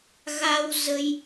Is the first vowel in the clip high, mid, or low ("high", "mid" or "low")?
low